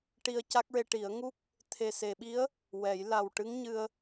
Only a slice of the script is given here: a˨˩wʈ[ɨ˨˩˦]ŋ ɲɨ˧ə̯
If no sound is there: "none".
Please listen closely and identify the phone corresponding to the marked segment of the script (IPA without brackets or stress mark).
ɨ˧˥